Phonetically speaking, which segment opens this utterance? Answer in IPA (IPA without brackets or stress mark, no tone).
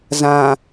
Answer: z